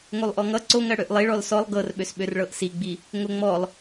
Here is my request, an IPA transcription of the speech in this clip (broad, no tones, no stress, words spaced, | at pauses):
ŋolˠʔɔŋʌ ǀoŋɜ ɽøʔlˠiɭɔl sɔlˠ ɡɤrɓøs ɓørɭɤʔsiɡ͡bi | ŋoŋ͡mɔlˠ